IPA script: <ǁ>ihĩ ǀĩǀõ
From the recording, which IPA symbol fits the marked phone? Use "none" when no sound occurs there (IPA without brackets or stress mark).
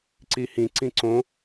ǀ